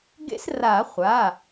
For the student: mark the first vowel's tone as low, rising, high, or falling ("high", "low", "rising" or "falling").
high